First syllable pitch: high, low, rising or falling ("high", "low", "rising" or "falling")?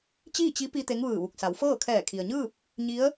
falling